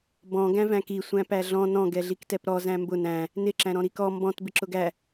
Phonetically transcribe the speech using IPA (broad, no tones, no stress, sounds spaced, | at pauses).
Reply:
b ɔ̃ ɡ æ̃ v æ̃ k i sʷ æ̃ p æ ɮ ɔ̃ n ɔ̃ ɡ ɛ ɮ i k t ɛ p ɾ ɔ z æ̃ m b ʊ n æ̃ | n ɪ ǁ æ̃ ɾ ɔ̃ ɾ i k ɔ m b ɔ̃ t b ɪ ǁ ʊ ɡ æ